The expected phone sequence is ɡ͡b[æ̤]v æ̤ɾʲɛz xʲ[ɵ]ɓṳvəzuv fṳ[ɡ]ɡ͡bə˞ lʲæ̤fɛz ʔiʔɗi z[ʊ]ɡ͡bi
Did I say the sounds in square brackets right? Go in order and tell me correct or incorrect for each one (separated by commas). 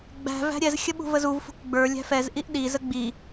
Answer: correct, incorrect, incorrect, incorrect